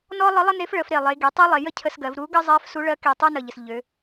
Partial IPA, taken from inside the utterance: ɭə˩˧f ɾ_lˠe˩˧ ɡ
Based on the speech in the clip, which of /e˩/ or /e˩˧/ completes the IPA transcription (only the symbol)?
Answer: e˩